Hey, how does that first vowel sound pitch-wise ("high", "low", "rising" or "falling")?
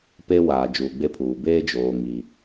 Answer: high